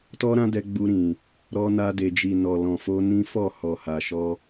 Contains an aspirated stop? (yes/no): no